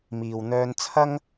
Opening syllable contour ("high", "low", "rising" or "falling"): low